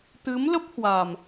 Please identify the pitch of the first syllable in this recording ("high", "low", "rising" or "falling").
rising